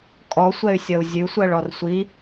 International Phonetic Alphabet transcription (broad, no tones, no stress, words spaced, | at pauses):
kʼɔsʷɛy̯sʲʌu̯ zʲʉsʷɜɭɔr sʷi